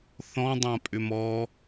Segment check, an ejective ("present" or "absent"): present